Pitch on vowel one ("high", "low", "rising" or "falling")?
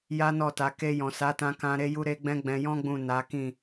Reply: high